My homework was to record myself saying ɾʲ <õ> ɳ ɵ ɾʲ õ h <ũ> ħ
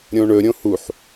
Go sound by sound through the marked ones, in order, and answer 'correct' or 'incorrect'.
correct, incorrect: u

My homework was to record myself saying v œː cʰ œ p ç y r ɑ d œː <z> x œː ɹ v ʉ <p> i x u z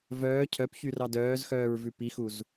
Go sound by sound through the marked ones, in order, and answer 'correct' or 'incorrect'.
correct, correct

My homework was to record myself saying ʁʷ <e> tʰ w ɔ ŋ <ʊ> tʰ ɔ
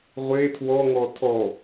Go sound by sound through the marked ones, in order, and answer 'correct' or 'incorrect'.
correct, incorrect: ɔ

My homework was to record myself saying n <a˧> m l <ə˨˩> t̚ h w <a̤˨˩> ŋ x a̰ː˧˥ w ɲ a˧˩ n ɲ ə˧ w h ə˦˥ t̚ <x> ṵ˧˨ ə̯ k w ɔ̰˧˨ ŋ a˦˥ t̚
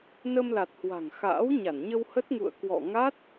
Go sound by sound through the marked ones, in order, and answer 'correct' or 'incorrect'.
incorrect: ə˧, incorrect: a˨˩, correct, incorrect: ŋ

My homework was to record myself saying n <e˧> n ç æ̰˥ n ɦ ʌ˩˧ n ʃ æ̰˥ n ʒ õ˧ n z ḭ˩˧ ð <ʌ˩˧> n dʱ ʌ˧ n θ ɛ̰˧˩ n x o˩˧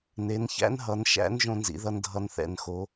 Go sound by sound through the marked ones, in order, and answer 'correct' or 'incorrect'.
incorrect: e˩˧, incorrect: ʌ˧

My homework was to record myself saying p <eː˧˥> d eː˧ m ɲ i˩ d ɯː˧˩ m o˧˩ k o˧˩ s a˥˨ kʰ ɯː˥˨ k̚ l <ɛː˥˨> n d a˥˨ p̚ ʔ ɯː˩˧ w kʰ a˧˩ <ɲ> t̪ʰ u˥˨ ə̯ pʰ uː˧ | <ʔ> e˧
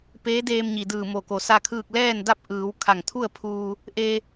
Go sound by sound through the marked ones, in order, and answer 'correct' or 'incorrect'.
correct, correct, incorrect: ŋ, correct

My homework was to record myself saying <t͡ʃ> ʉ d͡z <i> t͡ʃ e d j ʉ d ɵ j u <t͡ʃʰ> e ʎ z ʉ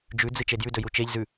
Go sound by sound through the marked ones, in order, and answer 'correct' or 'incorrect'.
incorrect: d͡ʒ, incorrect: ɨ, incorrect: t͡ʃ

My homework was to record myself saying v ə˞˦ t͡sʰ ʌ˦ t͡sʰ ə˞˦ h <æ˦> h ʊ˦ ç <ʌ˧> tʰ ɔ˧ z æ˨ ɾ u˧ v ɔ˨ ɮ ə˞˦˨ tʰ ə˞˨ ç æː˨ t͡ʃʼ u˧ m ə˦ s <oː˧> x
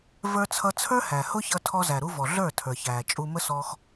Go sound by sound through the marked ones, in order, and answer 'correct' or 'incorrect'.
incorrect: æ˨, correct, incorrect: ɔː˧

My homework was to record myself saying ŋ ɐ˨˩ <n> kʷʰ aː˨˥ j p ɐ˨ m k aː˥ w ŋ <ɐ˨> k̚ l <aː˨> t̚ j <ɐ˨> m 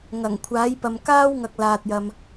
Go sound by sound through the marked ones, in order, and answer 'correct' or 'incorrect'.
incorrect: ŋ, correct, correct, correct

